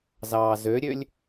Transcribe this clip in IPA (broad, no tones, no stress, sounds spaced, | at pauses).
z ɑː z ø ɾʲ ø lʲ